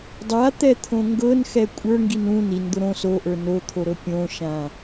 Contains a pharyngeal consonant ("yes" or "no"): no